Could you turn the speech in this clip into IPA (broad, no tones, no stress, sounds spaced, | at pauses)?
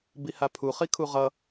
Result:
b i h a pʰ u χ i kʰ u ʁ ʌ